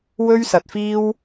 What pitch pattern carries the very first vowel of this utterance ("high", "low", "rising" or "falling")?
high